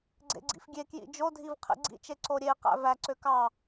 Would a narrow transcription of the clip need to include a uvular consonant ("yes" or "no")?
yes